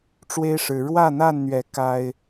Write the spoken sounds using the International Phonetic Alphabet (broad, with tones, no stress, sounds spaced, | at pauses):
ʈ͡ʂ w e˦ ɪ̯ ʂ ɻ̩˨˦ ɻ w ä˥˨ n̪ a˥˨ n n̪ ɥ ɛ˨˦ k a˦ ɪ̯